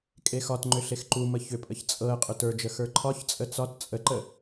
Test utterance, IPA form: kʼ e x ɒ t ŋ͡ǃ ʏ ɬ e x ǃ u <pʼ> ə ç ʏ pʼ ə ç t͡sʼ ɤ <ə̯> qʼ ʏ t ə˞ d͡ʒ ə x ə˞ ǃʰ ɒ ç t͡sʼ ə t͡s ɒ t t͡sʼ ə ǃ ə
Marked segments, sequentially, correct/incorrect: incorrect: m, correct

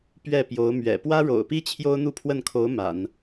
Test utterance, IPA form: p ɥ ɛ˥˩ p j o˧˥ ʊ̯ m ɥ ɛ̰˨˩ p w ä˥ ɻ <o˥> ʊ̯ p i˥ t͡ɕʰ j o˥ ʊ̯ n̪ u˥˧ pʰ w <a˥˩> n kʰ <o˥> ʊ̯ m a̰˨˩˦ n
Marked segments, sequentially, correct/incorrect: incorrect: o̰˨˩, incorrect: ə˥˩, incorrect: o˧˥

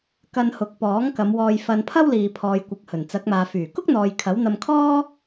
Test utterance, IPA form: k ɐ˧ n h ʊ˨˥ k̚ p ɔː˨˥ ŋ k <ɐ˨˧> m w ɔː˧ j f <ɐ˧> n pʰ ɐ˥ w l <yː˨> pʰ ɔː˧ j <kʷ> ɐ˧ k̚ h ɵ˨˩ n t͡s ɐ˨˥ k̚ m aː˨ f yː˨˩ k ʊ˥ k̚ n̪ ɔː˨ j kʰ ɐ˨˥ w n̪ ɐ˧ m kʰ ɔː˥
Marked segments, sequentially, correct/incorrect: correct, correct, incorrect: iː˨, correct

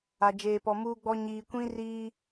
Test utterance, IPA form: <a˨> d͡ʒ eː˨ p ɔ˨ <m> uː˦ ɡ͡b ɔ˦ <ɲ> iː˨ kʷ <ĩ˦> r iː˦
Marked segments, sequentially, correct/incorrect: correct, correct, correct, correct

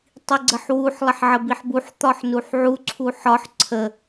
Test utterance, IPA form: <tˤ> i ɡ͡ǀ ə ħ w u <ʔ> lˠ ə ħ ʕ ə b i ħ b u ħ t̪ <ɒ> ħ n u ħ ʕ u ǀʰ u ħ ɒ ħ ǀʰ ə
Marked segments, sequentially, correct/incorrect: correct, incorrect: ħ, correct

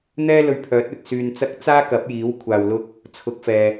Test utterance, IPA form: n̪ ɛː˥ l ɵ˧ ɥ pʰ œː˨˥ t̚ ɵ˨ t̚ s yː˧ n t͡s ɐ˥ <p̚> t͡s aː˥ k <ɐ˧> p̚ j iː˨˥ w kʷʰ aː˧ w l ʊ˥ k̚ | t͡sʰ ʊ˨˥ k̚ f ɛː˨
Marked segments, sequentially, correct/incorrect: incorrect: k̚, incorrect: ɐ˨˥

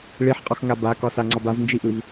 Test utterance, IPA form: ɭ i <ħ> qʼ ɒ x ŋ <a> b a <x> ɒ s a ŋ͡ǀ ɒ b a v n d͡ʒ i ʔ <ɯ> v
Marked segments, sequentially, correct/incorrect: correct, correct, incorrect: k, correct

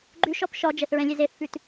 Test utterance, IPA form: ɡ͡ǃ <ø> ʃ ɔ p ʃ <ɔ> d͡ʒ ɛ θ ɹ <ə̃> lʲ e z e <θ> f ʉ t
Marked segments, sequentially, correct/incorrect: incorrect: ʉ, correct, incorrect: ɛ̃, correct

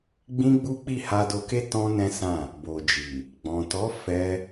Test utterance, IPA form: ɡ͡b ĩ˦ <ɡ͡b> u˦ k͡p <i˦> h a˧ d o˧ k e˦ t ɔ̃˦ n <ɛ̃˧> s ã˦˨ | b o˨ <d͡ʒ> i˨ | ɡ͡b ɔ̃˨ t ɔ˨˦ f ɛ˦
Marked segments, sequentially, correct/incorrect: correct, incorrect: i˦˨, incorrect: ɛ̃˦, correct

